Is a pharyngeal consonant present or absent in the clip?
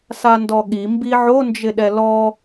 present